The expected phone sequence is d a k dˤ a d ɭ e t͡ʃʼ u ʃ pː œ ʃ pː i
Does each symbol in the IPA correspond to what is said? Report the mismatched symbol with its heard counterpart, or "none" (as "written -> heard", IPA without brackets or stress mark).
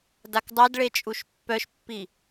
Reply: none